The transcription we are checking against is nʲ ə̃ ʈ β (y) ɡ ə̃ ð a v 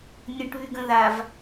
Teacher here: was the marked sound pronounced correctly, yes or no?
yes